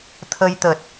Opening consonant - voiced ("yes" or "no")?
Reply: no